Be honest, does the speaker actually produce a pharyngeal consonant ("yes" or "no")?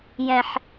yes